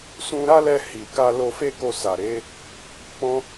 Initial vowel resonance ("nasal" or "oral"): nasal